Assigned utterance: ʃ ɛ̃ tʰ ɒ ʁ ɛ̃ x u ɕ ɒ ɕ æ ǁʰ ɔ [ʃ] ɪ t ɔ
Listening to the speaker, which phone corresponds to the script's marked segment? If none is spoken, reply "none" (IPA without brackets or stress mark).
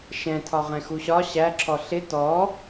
ɬ